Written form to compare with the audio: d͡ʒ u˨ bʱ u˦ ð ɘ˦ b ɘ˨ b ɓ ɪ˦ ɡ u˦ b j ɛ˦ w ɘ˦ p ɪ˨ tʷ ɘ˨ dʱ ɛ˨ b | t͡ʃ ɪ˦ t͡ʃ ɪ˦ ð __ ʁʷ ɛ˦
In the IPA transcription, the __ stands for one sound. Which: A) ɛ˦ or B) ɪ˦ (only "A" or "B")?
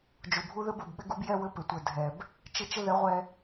A